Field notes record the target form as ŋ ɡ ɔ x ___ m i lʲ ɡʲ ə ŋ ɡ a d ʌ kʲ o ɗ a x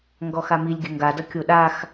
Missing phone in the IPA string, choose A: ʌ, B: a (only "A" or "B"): B